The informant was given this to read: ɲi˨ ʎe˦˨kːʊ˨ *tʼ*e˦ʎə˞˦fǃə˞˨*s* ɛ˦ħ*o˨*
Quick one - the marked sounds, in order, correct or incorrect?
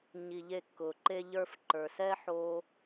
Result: incorrect: ǃ, correct, incorrect: o˧

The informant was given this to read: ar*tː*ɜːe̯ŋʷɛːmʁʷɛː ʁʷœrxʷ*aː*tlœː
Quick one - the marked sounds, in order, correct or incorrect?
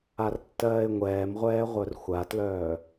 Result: correct, incorrect: a

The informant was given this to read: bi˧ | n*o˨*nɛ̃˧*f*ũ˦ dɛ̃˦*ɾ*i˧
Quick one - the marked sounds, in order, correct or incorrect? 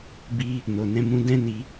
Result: correct, incorrect: m, incorrect: n

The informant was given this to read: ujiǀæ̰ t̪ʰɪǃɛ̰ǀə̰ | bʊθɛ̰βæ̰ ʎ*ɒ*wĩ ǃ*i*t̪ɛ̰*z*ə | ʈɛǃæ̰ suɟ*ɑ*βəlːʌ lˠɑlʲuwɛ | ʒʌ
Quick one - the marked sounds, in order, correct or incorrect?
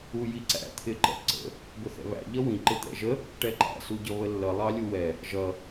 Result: incorrect: ʌ, incorrect: ɪ, incorrect: ʒ, incorrect: ʌ

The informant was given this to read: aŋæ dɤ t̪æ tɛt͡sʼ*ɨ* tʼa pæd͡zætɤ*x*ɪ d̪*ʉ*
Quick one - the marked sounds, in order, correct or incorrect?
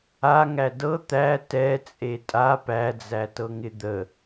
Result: incorrect: e, incorrect: ŋ, incorrect: ə

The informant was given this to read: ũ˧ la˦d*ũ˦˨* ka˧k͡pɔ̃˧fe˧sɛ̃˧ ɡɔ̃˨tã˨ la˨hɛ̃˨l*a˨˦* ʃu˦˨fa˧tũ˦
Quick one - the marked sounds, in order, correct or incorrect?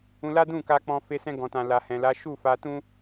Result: correct, correct

